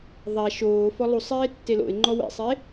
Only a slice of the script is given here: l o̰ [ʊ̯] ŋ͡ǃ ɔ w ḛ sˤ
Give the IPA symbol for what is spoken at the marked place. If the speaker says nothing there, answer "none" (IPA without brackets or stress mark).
ɪ̯